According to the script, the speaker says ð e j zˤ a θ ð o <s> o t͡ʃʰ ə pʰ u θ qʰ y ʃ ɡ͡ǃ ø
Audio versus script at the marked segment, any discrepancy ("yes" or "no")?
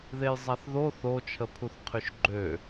yes